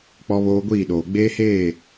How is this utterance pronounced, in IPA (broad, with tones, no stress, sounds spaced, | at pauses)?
k͡p ɔ˦ β oː˦ ɡʷ iː˦˨ ɗ oː˨ ɡ͡b eː˦ h eː˦˨